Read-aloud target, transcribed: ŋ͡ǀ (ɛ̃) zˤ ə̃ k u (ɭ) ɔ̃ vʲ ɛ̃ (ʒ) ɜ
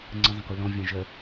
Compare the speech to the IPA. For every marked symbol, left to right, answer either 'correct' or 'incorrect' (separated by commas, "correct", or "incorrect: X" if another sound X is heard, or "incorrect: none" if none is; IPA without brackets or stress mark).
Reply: incorrect: ə̃, incorrect: l, correct